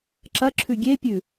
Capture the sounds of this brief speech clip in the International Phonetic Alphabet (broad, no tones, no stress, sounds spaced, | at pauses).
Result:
ǁ ɐ ǁʰ ʉ ɡʲ e pʲ ʉ